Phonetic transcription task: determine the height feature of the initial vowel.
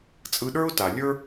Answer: high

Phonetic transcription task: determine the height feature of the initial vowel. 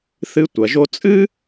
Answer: high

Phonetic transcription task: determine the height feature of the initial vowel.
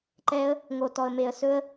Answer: mid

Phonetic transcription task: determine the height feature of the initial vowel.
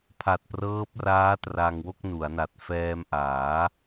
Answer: low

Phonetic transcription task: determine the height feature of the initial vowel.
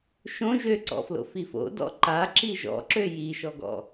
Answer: mid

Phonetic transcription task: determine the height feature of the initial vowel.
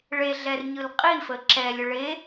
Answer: mid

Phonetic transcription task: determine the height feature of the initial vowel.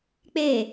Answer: mid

